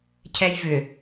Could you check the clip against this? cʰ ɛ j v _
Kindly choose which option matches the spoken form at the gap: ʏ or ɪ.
ʏ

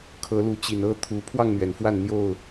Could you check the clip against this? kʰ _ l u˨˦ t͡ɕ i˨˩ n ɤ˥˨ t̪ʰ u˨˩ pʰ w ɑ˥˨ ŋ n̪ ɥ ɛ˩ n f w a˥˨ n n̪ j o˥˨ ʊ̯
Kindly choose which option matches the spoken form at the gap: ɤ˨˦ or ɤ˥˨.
ɤ˨˦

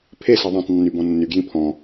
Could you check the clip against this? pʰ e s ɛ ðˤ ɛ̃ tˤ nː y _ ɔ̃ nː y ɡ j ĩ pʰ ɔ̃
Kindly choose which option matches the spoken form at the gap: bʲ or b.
b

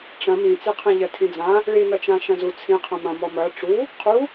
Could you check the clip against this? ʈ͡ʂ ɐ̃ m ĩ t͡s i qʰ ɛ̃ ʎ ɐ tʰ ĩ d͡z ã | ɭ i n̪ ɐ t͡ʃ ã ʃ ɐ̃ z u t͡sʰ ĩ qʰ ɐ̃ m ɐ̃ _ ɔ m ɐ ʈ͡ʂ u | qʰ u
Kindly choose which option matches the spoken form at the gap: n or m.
m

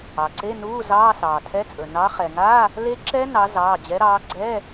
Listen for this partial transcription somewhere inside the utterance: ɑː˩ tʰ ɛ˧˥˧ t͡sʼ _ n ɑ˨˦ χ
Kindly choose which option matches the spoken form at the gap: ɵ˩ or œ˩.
ɵ˩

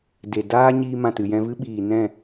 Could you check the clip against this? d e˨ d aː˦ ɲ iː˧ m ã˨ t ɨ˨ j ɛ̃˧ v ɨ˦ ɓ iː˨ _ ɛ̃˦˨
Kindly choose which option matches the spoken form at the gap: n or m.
n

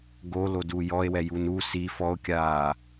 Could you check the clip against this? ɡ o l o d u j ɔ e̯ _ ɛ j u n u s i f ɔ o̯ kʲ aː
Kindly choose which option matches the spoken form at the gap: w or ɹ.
w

